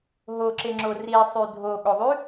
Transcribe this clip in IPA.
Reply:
ɦoǁeŋ͡ǁo risˤy dʱoɠoðˤy

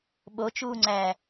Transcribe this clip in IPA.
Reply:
ɓot͡ʃuːŋ͡ǀæː

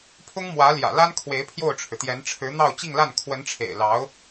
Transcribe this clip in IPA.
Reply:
pʰʊ˥ŋmwä˧˥ljä̰˨˩ la˥nkʰwe˧˥ɪ̯ pʰjo˥˩ʊ̯ʈ͡ʂʰɻ̩˩t̪jɛ˧˥n ʈ͡ʂʰɻ̩˧˥n̪ɑ˥˧ʊ̯ t͡ɕi˥˧ŋla˥˩n kʰwə˧˥nʈ͡ʂʰḛ˨˩ɪ̯lɑ˧˥ʊ̯

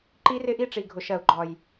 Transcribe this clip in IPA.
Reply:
ǃi˦rɪ˦ʔi˦ʈ͡ʂi˨ ɡʱʊ˨ʃɜ˨u̯ɡ͡ǃɒ˨j

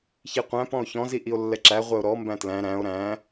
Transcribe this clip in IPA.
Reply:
çiqʷæ̃ pɔ̃o̯çɔ̃ ziʔio̯lːɛǁæ ʁʷɛo̯ɾɔ mbæ̃tlæ̃ ɾæ̃o̯ ɾæ̃

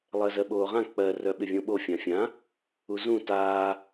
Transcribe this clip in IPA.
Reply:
lˠɜzɜɓoːʁã k͡pɜ rœɓɪvʲõɓo fʲãfʲã | uzũ taː

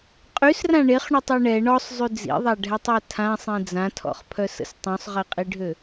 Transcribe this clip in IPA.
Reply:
qʼysrã ɳeχɳutˤɛ ɳɛ ɳɔsˤzˤy d͡zḭðˤaɖʱɛtˤa tʰãsˤĩ d͡zãtʰɔ̰χpʰœsə̰s tˤũsˤʁiqʼiɖʱø

